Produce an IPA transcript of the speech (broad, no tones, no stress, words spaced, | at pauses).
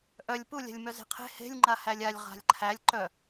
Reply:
ʔœlʲ pulʲa̤lʲmœ ze̤qʰe̤ he̤lʲŋ͡ǃahælʲ alʲ ʁa̤lʲǃʰælʲ ǃœ